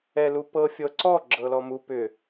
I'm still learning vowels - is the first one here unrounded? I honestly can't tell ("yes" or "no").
yes